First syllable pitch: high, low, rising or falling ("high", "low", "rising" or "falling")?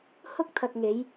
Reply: high